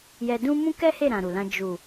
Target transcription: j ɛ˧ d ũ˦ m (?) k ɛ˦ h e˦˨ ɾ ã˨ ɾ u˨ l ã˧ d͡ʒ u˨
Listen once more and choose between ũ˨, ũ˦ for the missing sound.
ũ˦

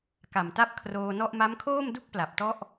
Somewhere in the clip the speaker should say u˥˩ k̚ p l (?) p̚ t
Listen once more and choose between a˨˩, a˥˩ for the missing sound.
a˨˩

